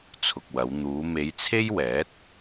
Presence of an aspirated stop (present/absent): present